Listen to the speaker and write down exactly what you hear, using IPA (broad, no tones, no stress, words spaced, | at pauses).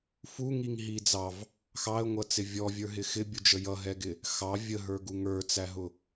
fuŋiŋɦi d͡zɑv | xɑə̯ŋʷʌt͡sɪ vʲɔvʲə˞ɦɪ xɪbʲud͡ʒə jʌɦɛɡɪ | xɑ vʲəɦə˞ɡu ŋə˞t͡sæɦʊ